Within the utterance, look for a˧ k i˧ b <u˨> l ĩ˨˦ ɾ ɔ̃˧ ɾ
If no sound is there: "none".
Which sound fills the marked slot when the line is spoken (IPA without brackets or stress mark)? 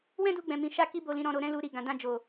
o˨